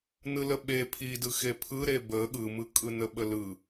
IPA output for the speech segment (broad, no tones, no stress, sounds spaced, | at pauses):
n ɯ l ə ɓ e pʰ i d ɯ x e pʰ ɯ ɾ e b ə ɠ ɯ m ɯ kʼ ɯ n ə ɓ ə l ɯ